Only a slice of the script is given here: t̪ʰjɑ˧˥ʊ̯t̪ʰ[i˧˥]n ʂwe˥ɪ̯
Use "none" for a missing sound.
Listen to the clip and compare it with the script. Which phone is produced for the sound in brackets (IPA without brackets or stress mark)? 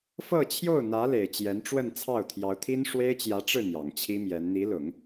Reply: i˥